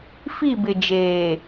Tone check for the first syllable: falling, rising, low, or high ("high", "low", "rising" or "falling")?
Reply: falling